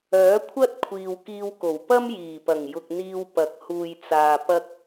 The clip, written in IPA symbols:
œː˨˥ kʷʰ ɐ˥ t̚ kʷʰ iː˨ w k iː˧ w k o˨˩ w p ɐ˥ m j iː˨˩ p ɐ˨˩ ŋ j ʊ˨ k̚ n̪ iː˧ w p ɐ˨˥ k̚ h uː˨ j t͡s aː˨ p ɐ˥ k̚

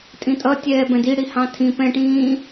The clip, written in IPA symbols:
tʼ ĩ tʼ ʌ tʲ ɛː b ɛ̃ d i ɽ i h ɑ̃ tʰ ĩ p ɛ̃ ʈ ĩː

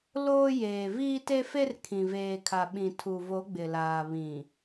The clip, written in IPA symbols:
l oː˦ j eː˨ v iː˦ t e˦ f e˦ r kʰ ĩ˨ v eː˨ kʰ a˨ ɓ ĩ˨ tʰ u˨ v o˨˦ ɡ͡b ɪ˨ l aː˨ β ĩ˨

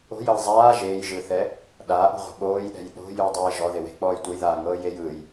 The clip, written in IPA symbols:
o̤ j ɤ j zˤ aː ʒ eː j ʒ ɯ θ ɛ | ɗ aː ʔ o̤ ʁʷ ɛ̤ ɓ oː j ɗ ɛ̤ j ɗ o̤ j ɯ j dˤ eː ʒ ɔ ð e w e̤ k͡p ɔː j tʷ ɤ j ð aː ŋ ɤː j e j ɯ j

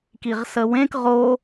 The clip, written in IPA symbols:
k i ʁ s ə w ẽ k ʁ o

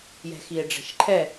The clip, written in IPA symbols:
j ɛ̤ x i e̯ ɖ͡ʐ ɛ̤ ʃ ǃʰ ɛ

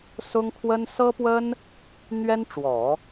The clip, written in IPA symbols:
s ʊ˥ ŋ kʰ w ə˥ n s ɤ˥ p w ə˥ n | n̪ ɥ ɛ˥ n ʈ͡ʂ w ɔ˨˩˦

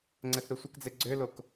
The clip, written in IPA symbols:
ŋ͡ǀ ɛ θ ɾ u sʷ ə k d͡z e ɡ͡ǀ ø l o k

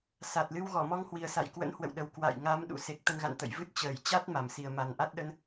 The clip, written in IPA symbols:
s a˨˩ t̚ l ɨ˧ w ɣ ɔ˧˩ m ɔ˧ ŋ h w i˨˩ ə̯ s a̰˧˨ j k w ə̰˧˥ n h w ə̰˧˨ w ɗ ə˨˩ w k w a̰˧˨ j ŋ a˨˦ m ɗ ṵ˧˥ s e˨˩ k̚ t̪ ə˧ n ɣ a̰˧˨ n t̪ ə̰˧˨ j v ɨ˦˥ t̚ t͡ɕ əː˧˩ j t͡ɕ a˦˥ t̚ m a˧˩ m s i˨˩ ə̯ m a˨˩ n ʔ a˦˥ t̚ ɗ ə˧ n

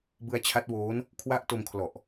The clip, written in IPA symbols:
b ɯ˧ a̯ t͡ɕʰ a˦˥ t̚ w oː˦˥ n | kʰ w a˦˥ ʔ t o˧ m kʰ l ɔ˨˩ ʔ

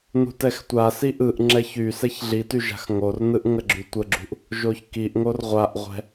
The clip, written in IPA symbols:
n ṳ t ɛ x tʷ a s i ʔ ɯ ʔ ŋ͡ǁ ɛ ç y s ɛ ç ɮ i t y ʒ a̤ x ŋ o r n ɯ ʔ ŋ ə ɡ͡ǁ y tʷ ə ɡ͡ǁ ṳ ʔ | ʒ o ç k i ʔ ŋ o r ʁʷ a ʔ ʁʷ ɛ̤

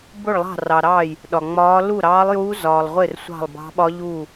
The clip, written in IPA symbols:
b ʊ˥˩ ɭ lˠ ɑ̤˥˩ r ɑ˨ ɾ ɑː˥˩ j | ɗ ɒ˨ ŋ͡m ɒː˧˥ l u˥˩ ɾ ɑː˧˥ lˠ j uː˧˥ z ɒː˨ lˠ ʁʷ ɪ˥˩ r sʷ ɑ̤˥˩ lˠ b ɑ̤˧˥ ɓ ɒ˧˥ ʎ uː˥˩

